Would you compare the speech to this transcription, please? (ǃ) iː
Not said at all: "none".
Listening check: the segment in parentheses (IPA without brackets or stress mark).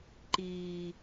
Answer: ǃ